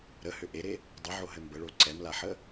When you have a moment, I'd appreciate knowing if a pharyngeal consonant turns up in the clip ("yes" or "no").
yes